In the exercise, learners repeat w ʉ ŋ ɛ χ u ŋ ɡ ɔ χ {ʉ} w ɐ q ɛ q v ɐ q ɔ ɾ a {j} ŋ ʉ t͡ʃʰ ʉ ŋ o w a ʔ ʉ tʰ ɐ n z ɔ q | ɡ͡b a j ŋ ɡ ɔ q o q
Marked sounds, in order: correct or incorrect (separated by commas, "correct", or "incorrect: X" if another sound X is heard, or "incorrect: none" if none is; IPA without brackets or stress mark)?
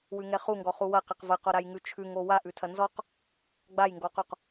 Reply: incorrect: u, correct